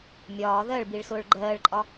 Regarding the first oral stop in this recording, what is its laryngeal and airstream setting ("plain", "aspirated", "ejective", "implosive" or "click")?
plain